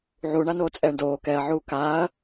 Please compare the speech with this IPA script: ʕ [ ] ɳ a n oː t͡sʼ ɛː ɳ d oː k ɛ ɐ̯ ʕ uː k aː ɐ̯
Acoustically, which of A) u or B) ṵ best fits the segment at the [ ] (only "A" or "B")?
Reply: A